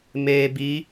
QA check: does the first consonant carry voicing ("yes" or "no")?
yes